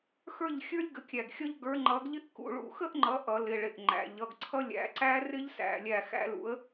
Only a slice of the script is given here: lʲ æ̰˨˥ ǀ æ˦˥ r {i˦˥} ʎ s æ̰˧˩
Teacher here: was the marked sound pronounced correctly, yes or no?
no